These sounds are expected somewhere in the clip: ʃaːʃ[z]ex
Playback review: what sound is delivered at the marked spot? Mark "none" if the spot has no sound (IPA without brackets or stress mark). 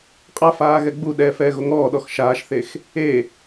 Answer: θ